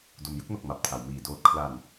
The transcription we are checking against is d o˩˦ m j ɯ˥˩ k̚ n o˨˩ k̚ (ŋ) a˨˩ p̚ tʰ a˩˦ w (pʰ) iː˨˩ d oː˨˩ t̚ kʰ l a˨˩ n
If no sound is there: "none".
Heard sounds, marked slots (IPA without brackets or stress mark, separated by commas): m, m